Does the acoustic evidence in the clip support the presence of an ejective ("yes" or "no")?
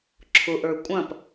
yes